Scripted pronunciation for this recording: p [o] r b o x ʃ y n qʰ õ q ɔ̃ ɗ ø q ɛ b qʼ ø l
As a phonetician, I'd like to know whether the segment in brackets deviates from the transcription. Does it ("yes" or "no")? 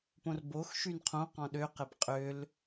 yes